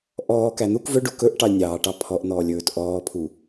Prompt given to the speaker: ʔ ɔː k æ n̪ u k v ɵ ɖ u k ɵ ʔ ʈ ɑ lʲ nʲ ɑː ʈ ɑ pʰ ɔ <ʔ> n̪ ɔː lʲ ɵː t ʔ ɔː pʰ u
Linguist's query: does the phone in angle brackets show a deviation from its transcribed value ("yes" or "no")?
no